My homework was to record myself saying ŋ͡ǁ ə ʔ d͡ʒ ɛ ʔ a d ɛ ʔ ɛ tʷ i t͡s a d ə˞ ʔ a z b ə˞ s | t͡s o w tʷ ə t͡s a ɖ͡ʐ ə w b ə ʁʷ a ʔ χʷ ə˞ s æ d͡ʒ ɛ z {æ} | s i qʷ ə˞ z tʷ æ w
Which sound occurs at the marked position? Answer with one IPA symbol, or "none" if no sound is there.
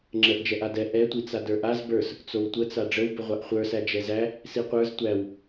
æ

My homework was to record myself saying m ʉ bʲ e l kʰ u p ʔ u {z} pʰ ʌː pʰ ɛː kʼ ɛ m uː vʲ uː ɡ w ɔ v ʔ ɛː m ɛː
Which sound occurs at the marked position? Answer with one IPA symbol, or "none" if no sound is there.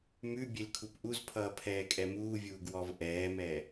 z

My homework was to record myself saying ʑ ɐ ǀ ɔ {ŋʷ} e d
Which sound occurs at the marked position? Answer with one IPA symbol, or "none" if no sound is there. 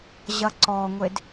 ŋʷ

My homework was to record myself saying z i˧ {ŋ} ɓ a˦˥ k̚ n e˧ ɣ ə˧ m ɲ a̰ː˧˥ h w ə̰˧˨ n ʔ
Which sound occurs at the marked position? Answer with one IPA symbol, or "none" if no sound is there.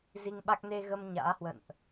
ŋ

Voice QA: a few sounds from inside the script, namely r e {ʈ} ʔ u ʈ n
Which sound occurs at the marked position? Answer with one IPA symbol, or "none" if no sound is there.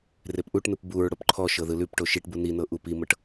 p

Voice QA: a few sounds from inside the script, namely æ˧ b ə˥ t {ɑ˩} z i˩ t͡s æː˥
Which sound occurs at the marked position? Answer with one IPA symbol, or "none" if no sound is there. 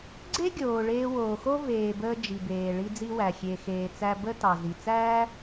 ɑ˩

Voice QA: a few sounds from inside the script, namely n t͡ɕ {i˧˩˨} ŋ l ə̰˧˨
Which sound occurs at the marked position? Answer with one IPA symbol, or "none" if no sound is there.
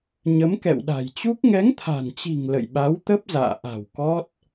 i̤˨˩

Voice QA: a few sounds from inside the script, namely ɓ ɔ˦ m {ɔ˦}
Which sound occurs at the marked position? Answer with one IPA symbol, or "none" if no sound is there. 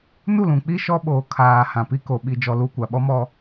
ɔ˦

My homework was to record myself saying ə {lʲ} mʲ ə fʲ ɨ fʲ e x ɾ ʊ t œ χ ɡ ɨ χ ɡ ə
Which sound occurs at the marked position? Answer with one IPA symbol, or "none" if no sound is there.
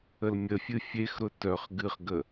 l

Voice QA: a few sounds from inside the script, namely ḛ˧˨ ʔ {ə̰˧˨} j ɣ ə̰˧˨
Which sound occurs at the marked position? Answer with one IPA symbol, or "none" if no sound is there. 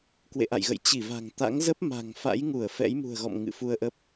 a̰˧˨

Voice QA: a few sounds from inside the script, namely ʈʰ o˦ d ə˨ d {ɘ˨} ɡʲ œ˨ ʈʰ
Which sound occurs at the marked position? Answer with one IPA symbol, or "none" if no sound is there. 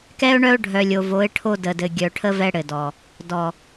ɘ˨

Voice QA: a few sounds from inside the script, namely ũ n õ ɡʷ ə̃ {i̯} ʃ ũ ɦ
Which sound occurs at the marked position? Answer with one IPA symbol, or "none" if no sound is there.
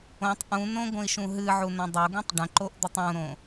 i̯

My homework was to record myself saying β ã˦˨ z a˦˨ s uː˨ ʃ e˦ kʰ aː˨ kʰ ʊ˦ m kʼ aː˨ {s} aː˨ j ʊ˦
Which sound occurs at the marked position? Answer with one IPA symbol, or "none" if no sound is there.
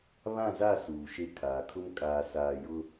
s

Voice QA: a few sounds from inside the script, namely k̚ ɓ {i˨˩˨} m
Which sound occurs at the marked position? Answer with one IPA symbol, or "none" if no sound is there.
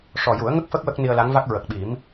i˨˩˦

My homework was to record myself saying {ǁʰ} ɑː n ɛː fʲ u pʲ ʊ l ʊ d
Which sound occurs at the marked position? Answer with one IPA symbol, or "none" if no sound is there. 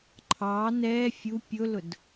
ǃʰ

